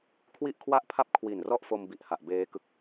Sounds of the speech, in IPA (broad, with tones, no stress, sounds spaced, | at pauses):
kʰ w i˥˩ ʔ kʰ w a˥˩ ʔ pʰ a˥˩ p̚ kʰ w i˨˩ n r ɔ˥˩ ʔ f o˧ m b i˨˩ ʔ h a˨˩ ʔ b eː˦˥ k ɯ˦˥ k̚